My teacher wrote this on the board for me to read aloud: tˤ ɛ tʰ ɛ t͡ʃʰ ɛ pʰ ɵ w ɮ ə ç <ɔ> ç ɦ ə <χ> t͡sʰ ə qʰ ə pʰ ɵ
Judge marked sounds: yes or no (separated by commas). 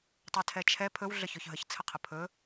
yes, no